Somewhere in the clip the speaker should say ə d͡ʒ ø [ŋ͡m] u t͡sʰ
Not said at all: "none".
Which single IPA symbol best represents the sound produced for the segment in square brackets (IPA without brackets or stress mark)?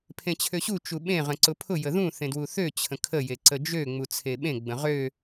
ŋ͡m